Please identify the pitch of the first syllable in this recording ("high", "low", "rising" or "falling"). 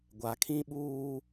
low